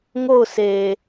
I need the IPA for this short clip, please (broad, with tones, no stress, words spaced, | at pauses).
ŋo˦˨ʊ̯sʰe˨